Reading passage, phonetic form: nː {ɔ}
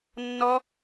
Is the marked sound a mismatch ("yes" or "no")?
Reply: no